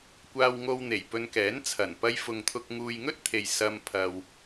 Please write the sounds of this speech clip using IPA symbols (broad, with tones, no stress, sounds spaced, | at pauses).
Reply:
kʷ aː˧ w ŋ o˧ w n̪ e˨˩ j p ɵ˧ n k ɛː˨˥ n t͡sʰ ɐ˨˩ n p ɐ˧ j f ʊ˨ ŋ t̪ʰ ʊ˧ k̚ ŋ uː˧ j ŋ ɵ˥ t̚ t̪ʰ e˨ j s ɐ˧ m pʰ ɐ˨ w